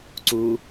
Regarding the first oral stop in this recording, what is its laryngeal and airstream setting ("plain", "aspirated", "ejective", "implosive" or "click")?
click